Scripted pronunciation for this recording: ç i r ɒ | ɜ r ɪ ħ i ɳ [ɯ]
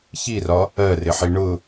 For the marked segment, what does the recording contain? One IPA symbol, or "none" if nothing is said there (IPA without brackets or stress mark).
ʊ